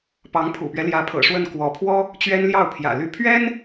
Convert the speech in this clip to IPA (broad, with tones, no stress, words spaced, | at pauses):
pɑ˧˥ŋpʰṵ˨˩pɥɛ˦ ljä˧˥pʰɤ̰˨˩ʂwə˥˩n kwɔ˧˥pʰwɔ˥ | t͡ɕɥɛ˥nljɑ˥˩ʊ̯pʰjä̰˨˩ ly˥˩ pʰɥɛ˥n